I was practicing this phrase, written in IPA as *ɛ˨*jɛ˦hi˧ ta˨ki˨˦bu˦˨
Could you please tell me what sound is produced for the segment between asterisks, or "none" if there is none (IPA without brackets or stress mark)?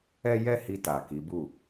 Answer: ɛ˦